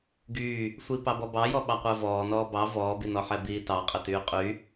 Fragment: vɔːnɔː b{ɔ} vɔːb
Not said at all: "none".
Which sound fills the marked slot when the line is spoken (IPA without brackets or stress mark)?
ɑ